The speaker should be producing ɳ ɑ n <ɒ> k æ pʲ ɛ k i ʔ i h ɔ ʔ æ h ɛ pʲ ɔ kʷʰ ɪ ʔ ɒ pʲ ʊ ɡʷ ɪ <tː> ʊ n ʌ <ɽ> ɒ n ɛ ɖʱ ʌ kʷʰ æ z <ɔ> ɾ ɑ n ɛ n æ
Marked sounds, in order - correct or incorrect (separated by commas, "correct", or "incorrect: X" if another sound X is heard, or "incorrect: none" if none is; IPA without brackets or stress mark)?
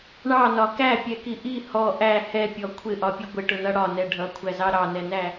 correct, incorrect: ʈ, correct, incorrect: ɑ